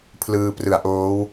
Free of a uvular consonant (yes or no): yes